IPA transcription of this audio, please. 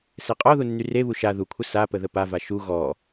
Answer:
s ɛ qʼ ɔ ð u nː y r e β u ʃ a ð u kʷʰ ə s a p ə ð ə p a v a ʃ u ɣ ɔ

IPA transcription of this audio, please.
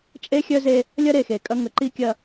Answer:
t͡ʃʼ e˦ xʲ œ˦ z e˦ | lʲ ɐ˦ ɾ e˨ x e˨ kʼ ɐ˦ ŋ ə˨˦ ǃ i˦ kʲ ɐ˦

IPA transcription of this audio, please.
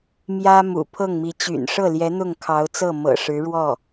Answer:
m j ä˥ m ṵ˨˩ pʰ ɤ˥˩ ŋ m i˧˥ t͡ɕ y̰˨˩ n ʂ ɤ˥˩ l j ɛ˧˥ n̪ ʊ˥˩ ŋ kʰ ɑ˧˥ ʊ̯ t͡s ɤ˥˩ m ɤ̰˨˩ ʂ ɻ̩˧˥ ɻ w ɔ˥˩

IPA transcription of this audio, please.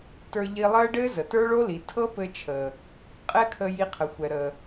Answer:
t ə˞˧ ʎ i˧ lˠ əː˦ ɖ ɘː˦ z ə˨ t ə˞˦ ɭ o˦ l i˨ tʰ ɤ˦ p ɘ˧ t͡ʃʰ əː˨ | qʼ ɛ˦ kʰ ə˧ j i˧ qʰ ə˨ xʷ ɛ˨ ɾ əː˨

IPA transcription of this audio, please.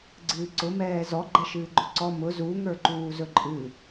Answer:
ɡ͡ǀ ɨː ǀ ʊ m ɛː z ɔ ɡ͡ǃ ɛ ʃ ɨː ɡ͡ǃ ɵ ǀ ɔ m ʊ z u ŋ ə˞ ǃ uː z ɵ ǃʼ ɨ

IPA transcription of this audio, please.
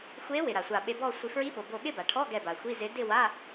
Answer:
xʷ e˧˥ w ɪ˩ ɾ a˩ sʷ a˧˩ ɓ e˧ b ɔ˥˧ sʷ i˧ f ɹ i˧˥ ɓ o˩ b o˧˩ ɠ ɪ˥˧ b a˩ ʈʰ ɔ˧˥˧ ɡ ɛ˧˩ b a˩ xʷ i˧˥˧ z ɪ˧˥ d ɪ˥˧ w a˧˥˧

